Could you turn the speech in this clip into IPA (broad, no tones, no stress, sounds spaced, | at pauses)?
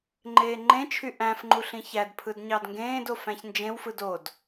ŋ͡ǃ eː ŋ͡ǃ ẽ t͡ʃʰ y ʔ æ̃ f ŋ͡ǃ u ɬ ĩ ç æ d pʰ ɯ d ɲ ɑ d ŋ ɡ ẽː d o f æ̃ ç n d͡ʒ ẽ w f ɯ d o d